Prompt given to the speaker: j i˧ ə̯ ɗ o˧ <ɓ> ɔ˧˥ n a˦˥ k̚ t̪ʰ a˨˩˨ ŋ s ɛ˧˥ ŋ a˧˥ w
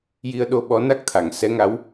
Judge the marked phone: correct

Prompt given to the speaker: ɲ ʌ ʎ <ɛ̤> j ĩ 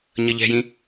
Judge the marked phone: correct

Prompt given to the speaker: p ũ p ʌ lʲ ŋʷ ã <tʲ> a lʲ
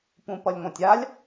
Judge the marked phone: correct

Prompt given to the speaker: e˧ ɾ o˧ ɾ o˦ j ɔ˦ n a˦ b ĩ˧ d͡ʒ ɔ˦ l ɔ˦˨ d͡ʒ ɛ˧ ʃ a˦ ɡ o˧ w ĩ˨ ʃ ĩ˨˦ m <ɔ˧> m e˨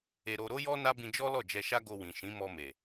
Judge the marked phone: correct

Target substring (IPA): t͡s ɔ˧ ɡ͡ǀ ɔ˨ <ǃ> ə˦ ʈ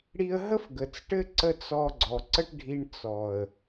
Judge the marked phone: incorrect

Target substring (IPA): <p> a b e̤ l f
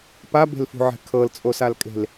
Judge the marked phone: correct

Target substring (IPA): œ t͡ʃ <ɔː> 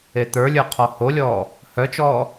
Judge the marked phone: correct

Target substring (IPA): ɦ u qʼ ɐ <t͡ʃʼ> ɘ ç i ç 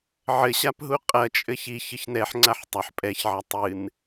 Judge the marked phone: correct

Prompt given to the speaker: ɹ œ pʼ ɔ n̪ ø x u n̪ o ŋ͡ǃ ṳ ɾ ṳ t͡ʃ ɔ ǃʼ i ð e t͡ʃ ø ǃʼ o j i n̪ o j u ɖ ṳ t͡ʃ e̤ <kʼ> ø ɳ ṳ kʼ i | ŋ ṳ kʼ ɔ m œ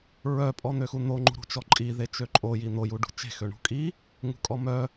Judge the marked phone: incorrect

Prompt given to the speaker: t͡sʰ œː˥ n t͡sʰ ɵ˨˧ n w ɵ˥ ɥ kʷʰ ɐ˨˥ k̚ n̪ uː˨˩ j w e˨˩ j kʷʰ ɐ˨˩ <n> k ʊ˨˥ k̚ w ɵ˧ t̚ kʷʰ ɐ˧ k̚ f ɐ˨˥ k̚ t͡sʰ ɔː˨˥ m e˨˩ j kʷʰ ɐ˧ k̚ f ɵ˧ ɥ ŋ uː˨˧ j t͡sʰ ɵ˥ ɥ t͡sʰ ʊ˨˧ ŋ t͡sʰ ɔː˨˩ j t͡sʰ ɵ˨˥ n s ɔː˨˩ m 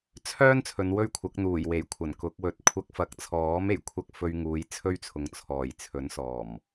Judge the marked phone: correct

